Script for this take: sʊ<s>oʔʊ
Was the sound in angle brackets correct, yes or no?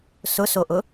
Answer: yes